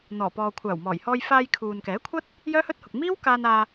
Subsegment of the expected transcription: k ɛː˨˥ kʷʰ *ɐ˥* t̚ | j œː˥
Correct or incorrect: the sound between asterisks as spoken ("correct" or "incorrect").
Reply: correct